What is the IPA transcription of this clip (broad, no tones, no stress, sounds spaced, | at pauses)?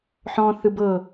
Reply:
ħ ɔ̃ θ ɯ b ɤ